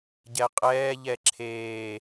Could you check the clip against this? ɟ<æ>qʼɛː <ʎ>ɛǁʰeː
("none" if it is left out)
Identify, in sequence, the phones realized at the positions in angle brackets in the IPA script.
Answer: ɛ, ʎ

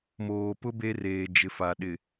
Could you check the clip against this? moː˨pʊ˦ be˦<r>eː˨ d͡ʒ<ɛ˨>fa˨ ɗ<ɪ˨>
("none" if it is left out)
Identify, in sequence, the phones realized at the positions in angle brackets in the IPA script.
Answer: r, ɪ˨, ɪ˨

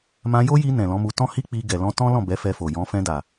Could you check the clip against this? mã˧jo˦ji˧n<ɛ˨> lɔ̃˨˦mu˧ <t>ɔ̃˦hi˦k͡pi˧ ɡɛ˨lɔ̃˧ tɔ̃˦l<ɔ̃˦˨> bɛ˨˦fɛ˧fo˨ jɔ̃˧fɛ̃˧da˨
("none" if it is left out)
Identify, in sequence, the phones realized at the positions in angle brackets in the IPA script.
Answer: ɛ̃˨, t, ɔ̃˦˨

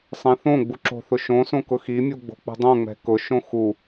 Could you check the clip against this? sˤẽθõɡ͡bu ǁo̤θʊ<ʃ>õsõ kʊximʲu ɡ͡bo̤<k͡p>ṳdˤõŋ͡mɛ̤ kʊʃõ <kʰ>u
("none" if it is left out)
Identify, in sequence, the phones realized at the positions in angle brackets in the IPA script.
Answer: ʃ, k͡p, x

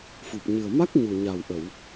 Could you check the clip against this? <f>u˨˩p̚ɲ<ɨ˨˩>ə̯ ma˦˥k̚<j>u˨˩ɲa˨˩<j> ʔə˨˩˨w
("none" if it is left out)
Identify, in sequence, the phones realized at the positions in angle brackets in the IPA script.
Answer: f, ɨ˨˩, ɲ, w

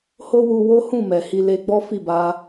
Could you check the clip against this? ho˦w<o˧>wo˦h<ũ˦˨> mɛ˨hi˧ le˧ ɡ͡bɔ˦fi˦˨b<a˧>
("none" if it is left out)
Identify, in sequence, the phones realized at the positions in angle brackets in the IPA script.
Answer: u˧, ũ˦˨, a˧

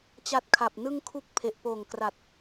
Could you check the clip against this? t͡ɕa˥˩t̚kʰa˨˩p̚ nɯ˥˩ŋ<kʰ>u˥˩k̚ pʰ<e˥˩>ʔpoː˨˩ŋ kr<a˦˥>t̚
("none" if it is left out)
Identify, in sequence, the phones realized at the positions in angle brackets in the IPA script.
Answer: kʰ, e˨˩, a˨˩

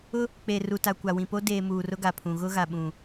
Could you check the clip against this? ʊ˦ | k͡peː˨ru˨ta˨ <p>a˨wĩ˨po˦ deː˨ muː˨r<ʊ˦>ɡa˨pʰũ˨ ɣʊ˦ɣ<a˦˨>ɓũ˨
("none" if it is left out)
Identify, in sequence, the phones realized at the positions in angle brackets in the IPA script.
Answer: kʷ, ʊ˦, a˨

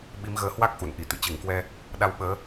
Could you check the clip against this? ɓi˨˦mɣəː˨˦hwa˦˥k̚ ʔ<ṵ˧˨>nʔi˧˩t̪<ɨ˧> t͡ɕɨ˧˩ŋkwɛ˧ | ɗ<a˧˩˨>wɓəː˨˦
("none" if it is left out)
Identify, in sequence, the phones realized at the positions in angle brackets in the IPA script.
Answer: ṵ˧˨, ɨ̰˧˨, a˧

